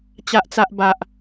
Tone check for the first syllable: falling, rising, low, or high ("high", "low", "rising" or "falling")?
high